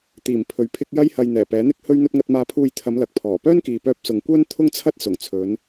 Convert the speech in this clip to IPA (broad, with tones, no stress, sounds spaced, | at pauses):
t̪ iː˨˩ m pʰ ɵ˨ ɥ pʰ ɪ˥ k̚ j ɐ˥ j h ɐ˧ j n̪ ɛː˨˩ p ɛː˨˥ n̪ ɪ˥ k̚ h ɵ˥ ɥ n̪ ɵ˥ t̚ ŋ ɐ˧ t̚ m aː˧ pʰ uː˧ j t̪ʰ ɐ˨˧ m l ɐ˨ k̚ pʰ ɔː˨˩ p œː˥ n k iː˨ p œː˧ p̚ s ʊ˨ ŋ kʷ œː˥ n t̪ʰ ʊ˥ ŋ t͡sʰ ɐ˥ t̚ s ʊ˨˩ ŋ t͡sʰ ɵ˨˧ n